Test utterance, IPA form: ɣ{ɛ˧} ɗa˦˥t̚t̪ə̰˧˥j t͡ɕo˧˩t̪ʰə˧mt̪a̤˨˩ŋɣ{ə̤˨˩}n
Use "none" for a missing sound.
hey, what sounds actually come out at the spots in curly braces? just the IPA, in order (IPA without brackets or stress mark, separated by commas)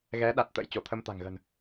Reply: ɛ˨˦, ə̤˨˩